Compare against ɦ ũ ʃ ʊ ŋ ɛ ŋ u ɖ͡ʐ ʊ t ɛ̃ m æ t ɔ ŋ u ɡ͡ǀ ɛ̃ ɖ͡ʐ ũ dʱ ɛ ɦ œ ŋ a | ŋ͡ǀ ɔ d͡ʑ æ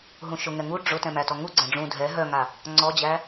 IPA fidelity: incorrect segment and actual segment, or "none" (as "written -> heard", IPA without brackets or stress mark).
none